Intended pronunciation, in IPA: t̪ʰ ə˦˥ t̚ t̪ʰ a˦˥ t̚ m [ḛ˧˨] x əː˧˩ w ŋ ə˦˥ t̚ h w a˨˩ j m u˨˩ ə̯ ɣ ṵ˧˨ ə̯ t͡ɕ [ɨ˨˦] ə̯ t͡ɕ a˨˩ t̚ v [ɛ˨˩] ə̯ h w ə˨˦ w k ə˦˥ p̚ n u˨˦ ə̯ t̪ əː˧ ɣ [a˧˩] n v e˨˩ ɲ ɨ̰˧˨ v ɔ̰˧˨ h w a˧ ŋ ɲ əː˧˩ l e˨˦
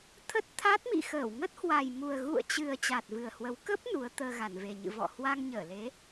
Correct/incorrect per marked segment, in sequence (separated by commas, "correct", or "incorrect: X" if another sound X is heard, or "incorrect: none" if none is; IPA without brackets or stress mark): incorrect: ḭ˧˨, incorrect: ɨ˨˩, incorrect: ɨ˨˩, correct